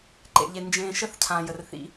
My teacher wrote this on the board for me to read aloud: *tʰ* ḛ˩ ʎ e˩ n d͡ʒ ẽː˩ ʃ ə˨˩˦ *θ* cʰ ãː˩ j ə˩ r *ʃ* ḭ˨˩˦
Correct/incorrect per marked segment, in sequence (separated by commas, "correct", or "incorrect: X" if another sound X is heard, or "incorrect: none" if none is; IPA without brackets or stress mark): incorrect: ǃ, correct, incorrect: θ